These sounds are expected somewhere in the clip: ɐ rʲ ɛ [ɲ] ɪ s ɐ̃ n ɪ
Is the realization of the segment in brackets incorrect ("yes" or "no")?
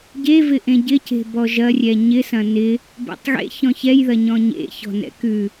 no